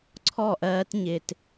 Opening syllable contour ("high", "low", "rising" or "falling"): falling